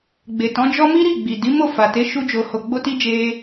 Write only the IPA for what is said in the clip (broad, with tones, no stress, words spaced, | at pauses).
ɡ͡be˨tɔ̃˨˦d͡ʒɔ˦ mi˦ɾi˦˨ɡ͡bi˨ di˨˦mo˦˨fa˨te˨˦ ʃu˦d͡ʒo˧ ho˨ɡ͡bo˧ti˧ d͡ʒe˦